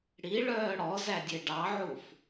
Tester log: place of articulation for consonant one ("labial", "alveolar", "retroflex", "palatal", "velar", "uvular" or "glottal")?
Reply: retroflex